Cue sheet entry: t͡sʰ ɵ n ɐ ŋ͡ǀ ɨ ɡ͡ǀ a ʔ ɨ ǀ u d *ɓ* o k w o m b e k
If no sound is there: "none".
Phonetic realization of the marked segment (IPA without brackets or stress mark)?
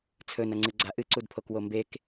pʰ